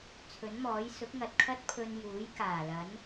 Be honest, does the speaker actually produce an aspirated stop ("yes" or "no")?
yes